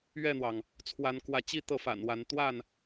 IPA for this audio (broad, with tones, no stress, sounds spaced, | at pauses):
ɥ ɛ˥˨ n̪ w ɑ˩ ŋ | t͡sʰ w a˨˦ n k w ä˨˦ t͡ɕ i˥˨ t̪ ɤ˥˨ f a̰˨˩ n w a˨˦ n t̪ w a˥˨ n